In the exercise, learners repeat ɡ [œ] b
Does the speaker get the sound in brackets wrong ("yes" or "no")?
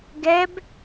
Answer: yes